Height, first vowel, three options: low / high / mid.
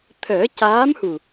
mid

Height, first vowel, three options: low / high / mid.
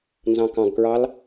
low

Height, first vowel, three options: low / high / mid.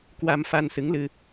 low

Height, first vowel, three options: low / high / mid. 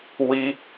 high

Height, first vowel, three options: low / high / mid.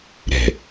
mid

